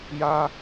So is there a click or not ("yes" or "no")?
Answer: no